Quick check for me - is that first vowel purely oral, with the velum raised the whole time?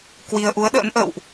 yes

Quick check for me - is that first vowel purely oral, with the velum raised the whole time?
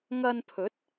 yes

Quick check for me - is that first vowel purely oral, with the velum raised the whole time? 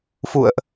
yes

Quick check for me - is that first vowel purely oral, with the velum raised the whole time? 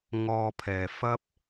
yes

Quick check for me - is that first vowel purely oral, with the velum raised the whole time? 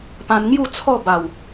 no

